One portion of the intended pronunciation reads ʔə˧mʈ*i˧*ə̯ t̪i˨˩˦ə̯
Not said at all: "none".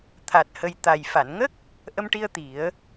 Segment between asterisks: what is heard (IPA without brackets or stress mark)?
i˧